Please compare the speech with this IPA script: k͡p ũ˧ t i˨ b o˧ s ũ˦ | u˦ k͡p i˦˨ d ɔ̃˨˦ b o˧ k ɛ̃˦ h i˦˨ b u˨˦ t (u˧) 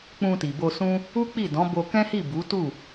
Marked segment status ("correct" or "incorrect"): incorrect